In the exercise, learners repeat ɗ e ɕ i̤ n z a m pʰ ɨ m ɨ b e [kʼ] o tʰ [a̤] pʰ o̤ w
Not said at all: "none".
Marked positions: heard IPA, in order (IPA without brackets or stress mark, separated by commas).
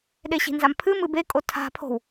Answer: kʼ, a̤